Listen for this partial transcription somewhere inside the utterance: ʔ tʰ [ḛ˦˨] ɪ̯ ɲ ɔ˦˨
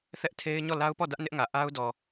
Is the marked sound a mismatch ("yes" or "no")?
yes